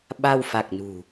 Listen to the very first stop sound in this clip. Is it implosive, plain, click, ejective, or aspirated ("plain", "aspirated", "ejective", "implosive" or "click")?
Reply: implosive